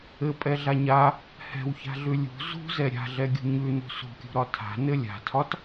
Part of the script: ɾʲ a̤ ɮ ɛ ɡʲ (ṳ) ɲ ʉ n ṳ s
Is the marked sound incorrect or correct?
correct